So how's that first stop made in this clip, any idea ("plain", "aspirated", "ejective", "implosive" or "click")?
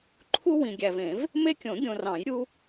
click